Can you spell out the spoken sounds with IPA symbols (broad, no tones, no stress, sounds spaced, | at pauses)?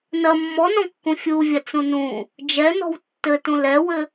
n ɐ mː ɔ n ɔ̃ kː ũ fʲ u vʲ a t͡s ũ n ũ | d͡ʒ ɛ n ɔ̤ w tː ɘ t ũ l ɛ w ɘ